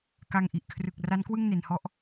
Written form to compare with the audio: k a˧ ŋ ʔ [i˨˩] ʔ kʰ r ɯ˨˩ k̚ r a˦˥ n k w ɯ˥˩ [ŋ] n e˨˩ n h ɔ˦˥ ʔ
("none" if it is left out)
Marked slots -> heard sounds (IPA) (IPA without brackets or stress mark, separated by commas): i˨˩, ŋ